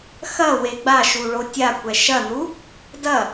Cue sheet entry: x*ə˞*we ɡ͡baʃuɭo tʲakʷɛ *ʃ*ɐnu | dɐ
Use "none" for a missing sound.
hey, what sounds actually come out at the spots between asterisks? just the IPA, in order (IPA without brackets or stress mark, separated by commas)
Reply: ɐ, ʃ